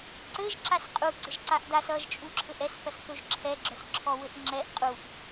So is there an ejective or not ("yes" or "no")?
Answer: yes